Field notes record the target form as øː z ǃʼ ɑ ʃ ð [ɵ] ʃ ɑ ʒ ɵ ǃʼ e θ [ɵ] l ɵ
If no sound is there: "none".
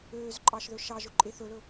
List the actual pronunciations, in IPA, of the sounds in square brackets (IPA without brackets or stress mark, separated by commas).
ɵ, ɵ